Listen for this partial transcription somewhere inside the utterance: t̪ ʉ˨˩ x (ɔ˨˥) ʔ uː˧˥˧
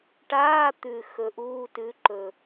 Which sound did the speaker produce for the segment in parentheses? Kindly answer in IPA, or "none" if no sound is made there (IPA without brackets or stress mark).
ɵ˨˥